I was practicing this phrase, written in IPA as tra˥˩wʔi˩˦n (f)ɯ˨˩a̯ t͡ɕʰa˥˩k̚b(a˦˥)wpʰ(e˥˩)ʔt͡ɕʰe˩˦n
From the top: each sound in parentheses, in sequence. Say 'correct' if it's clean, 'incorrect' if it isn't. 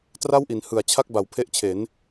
incorrect: h, incorrect: a˩˦, incorrect: e˦˥

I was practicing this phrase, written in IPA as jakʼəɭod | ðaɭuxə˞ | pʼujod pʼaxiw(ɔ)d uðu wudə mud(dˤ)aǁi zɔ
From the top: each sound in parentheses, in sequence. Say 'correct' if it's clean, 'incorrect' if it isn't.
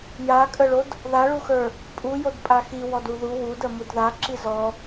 correct, incorrect: ð

